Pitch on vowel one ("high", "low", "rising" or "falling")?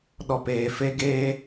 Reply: low